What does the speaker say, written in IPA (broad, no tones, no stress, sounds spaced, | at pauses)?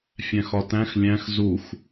fʲ æ̃ x ɒ t æ̃ x lʲ æ̃ x z u x